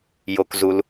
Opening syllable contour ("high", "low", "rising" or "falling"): low